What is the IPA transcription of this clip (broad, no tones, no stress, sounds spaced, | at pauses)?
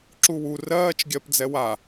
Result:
ǁ u w u r ɜː t͡ʃ ɡʲ ɜ p d͡z ɛ w a